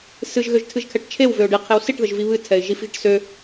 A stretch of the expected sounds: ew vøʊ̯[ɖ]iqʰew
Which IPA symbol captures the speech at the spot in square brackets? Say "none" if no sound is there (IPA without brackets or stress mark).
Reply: ɖ